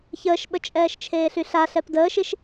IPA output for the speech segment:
ç əː ʃ ɓ ə t͡ʃʼ ɛː ʃ t͡ʃʰ eː ɬ y ɬ a ɬ ɛ p d əː ʃ i ʃ

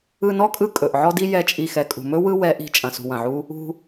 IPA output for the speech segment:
ɯ˧ n ɔ˦ kʼ ɯ˧ kʼ ɵ˨ ʔ ʕ ɔ˧ d i˧ j ɛ˨˦ t͡ʃʼ i˨ x ɛ˨ kʼ ṳ˨ m ɵ˦ w ɯ˦ w ɛ˨˦ ʔ i̤˨˦ t͡ʃʼ ɐ̃˨ s ṳ˨ w ɐ̃˨ ʕ u˦ | ṳ˧

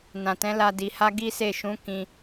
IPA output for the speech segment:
n ã˨ t ɛ̃˨˦ l a˧ d i˧ h a˦ ɡ i˦ s e˦˨ ʃ ũ˨˦ k ĩ˦

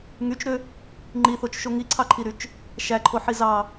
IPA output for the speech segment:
ŋ y t͡ʃ ɾ ø | ŋ͡ǃ i θ o t͡ʃ ʃ o ŋ i ǀʰ ɑ ǃʰ i ɾ y t͡ʃ | ʃ æ ǃʰ o ħ i z ɑ

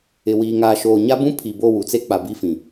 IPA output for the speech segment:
ɪ˨ w iː˨ ŋ aː˨ ʃ oː˨ ɲ a˦ b ũ˦ pʰ i˨ b o˦˨ w u˨ t͡s e˦ k͡p a˨ b i˦ f ĩ˨

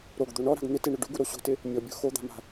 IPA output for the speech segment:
ɾ o ɡ d̪ o ɳ ɔ ɾ a̤ ɡ n̪ ɪ t e ɳ ʊ ɖ u ɡ u ɾ o ɕ o̤ t ɪ | mʲ ɔ bʲ o̤ x o d̪ a̤ m a̤

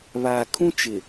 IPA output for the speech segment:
β aː˨ kʰ ũ˦ t͡ʃ ɪ˨

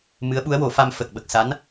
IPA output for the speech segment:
m ɨ˧˥ ə̯ ɓ u˧˥ ə̯ w o˨˩˦ f a˧ m f ə˨˩ k̚ ɓ ə˨˩ k̚ s a˧˥ n

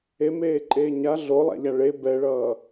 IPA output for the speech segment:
e m eː ǃʼ eː ɲ a ɮ o lˠ a̰ ʎ a ɭ e b ɛ ɭ ʌː

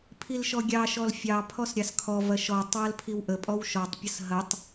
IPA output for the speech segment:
pʰ i l ʃ ɔ ɡʲ ɑ ʃ ɔ l fʲ ɑ pʰ ɔ s ɾʲ ɑ s kʰ ɔ v ɐ ʃ ɔ tˤ w ɐ l pʰ i w ʔ ə pʼ ɔ w ʃ ɔ tˤ pʲ ɐ s ɦ ɐ tˤ

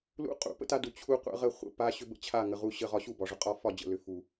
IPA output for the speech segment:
l ṵ˧ qʼ ṵ˨ p ə̰˦ t a˦ d u˨ t͡ɕʰ u˧ qʷ ə̰˧ ʁ ə˦˨ χʷ ə̰˧ p a˧ ɕ ʏ˦ b ə̰˦ t͡ɕʰ a˦˨ ŋ ə˨ ʁ u˧ ɕ ə˦˨ ʁ ɒ˧ ɕ u˦˨ b ɒ˨ ʐ ʏ˨ qʼ ɒ˦˨ f ɒ˦˨ d͡ʑ ə̰˨ l ʏ˨ f u˨

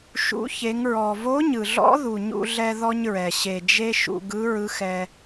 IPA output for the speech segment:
ʃ ṵ˩˧ ç e˩˧ ŋ ɹ ɔ˩ v o˧˥ ɲ ɯ˩ ɮ ɔ̰˧˥ ð u˩ ɲ ṵ˧ ɮ ɛ˧ ð ɔ˥ ɲ ɹ ɛ˩ ɕ e˩ d͡ʒ e˥ ʃ ṵ˧ ɡ ɯ˧˥ ɹ ɯ˧˥ x ɛ˧

